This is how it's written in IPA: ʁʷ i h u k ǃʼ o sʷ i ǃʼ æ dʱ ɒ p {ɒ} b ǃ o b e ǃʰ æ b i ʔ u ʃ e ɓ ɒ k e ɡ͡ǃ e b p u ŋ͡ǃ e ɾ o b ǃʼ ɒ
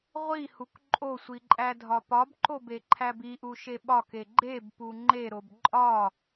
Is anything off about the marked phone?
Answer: no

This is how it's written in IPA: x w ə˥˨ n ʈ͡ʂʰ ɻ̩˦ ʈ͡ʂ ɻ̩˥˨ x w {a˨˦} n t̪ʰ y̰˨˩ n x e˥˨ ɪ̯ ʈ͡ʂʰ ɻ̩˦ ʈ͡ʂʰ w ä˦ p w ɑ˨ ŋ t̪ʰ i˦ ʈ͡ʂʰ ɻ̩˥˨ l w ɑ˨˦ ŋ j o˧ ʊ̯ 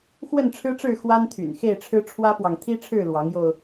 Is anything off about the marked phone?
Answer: yes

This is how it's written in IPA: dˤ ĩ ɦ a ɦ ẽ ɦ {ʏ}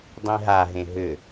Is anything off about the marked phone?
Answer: no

